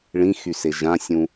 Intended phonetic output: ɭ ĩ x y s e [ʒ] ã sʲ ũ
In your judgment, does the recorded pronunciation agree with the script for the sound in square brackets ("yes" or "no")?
yes